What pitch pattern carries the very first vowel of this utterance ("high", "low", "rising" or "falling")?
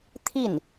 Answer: falling